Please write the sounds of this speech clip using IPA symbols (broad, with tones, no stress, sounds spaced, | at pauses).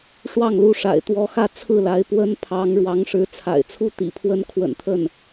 ʂ w ɑ˥˩ ŋ l u˧˥ ʂ a̰˨˩ ɪ̯ t̪ w ɔ˧˥ x ä˥˧ t͡sʰ ɹ̩˥˩ l a˧˥ ɪ̯ p w ə˥ n pʰ ɑ˧˥ ŋ ɻ w ɑ˧˥ ŋ ʂ ɻ̩˧˥ t͡sʰ a̰˨˩ ɪ̯ t͡sʰ u˥ t̪ ḭ˨˩ pʰ w ə˥ n kʰ w ə̰˨˩ n t̪ʰ ə˥˩ n